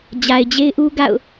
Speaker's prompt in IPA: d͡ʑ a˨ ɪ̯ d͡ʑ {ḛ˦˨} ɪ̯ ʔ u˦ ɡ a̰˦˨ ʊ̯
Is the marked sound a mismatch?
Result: yes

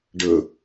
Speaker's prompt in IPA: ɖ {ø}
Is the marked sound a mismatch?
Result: yes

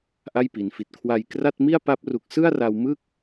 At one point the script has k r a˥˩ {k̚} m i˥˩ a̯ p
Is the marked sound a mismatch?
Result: yes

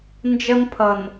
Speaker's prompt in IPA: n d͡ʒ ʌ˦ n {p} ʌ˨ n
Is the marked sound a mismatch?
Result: yes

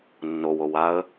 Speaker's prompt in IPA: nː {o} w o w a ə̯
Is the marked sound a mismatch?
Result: no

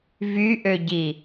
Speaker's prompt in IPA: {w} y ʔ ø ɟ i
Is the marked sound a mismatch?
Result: yes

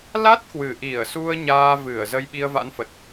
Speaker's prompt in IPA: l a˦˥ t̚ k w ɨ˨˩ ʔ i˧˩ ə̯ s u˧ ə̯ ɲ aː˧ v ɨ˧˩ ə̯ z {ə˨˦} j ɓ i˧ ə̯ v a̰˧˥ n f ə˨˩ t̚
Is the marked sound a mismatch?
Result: yes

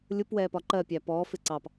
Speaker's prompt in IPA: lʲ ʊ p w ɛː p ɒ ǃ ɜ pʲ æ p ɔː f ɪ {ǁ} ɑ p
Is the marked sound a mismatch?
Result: yes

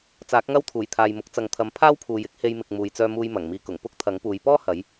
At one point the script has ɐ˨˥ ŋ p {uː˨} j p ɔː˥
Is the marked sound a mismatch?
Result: yes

